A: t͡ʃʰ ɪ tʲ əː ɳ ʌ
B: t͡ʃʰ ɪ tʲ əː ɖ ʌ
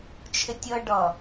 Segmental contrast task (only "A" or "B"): B